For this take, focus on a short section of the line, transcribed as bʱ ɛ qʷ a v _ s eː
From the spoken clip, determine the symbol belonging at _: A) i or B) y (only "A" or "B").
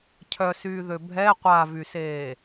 B